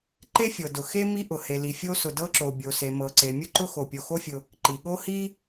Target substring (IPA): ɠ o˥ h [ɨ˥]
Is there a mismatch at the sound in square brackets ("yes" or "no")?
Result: yes